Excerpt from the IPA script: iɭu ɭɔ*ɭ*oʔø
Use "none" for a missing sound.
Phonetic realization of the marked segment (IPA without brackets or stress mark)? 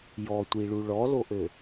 l